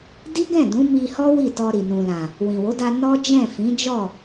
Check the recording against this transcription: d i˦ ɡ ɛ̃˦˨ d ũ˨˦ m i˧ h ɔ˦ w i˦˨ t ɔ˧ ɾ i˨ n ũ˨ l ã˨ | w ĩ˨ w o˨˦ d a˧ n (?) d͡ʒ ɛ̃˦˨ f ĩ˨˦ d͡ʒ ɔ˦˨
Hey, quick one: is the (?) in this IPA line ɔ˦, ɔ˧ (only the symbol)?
ɔ˦